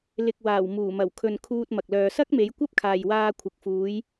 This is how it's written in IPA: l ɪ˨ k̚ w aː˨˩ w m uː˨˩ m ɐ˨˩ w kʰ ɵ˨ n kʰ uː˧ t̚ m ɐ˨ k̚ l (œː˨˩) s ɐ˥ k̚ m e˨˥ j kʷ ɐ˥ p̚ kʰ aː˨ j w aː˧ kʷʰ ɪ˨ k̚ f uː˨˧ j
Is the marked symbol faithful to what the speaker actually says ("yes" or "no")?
no